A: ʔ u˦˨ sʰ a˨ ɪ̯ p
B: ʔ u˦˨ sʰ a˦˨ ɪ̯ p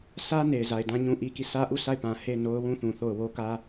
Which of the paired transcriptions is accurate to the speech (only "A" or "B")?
B